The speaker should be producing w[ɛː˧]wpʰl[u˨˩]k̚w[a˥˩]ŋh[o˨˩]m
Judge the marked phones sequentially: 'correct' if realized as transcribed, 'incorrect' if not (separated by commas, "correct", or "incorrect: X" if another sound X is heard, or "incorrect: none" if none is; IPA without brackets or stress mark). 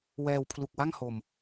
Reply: correct, correct, correct, correct